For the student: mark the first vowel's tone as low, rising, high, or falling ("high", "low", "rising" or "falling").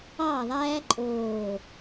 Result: falling